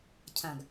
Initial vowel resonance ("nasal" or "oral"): nasal